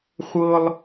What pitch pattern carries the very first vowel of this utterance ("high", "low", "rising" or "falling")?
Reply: high